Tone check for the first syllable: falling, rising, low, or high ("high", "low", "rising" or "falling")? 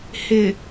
low